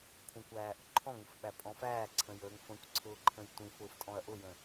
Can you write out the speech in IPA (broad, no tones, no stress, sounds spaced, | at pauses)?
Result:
kʷʰ ə̃ kʷ æː ʔ ʊ ǃʰ ɔ̃ ŋ ə f ɓ æ pʼ ɔ̃ f æː ǀʰ ə̃ j əː ŋ f ə̃ kʷ ǀʰ ʊː ǃʰ ə̃ j tʷ ĩ f ʊː f tʼ ɔ̃ ɐ̯ ʔ ʊ j ə̃